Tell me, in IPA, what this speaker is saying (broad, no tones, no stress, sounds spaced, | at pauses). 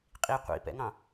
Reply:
qʼ i qʷ ḭ p ɛ̰ ŋ ɑ̃